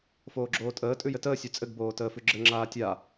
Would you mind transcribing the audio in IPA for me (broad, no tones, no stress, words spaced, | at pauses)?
foːɡ͡ǁoːtʼəː tʼʉjɘtəː sʲʉt͡sʼɘɡ boːtəːfʉɡ͡ǁɘ ŋ͡ǁaːtʲa